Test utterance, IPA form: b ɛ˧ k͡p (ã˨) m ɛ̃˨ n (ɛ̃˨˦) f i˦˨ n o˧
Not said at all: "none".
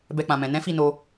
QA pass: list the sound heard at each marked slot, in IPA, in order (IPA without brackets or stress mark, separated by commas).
ã˨, ɛ̃˨˦